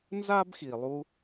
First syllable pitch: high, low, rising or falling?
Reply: high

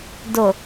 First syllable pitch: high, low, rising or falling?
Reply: low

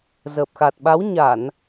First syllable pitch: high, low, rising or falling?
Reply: low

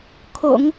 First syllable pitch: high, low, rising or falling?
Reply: low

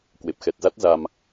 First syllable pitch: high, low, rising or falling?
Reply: low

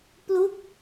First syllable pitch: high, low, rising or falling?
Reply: falling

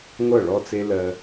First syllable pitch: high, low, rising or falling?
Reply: falling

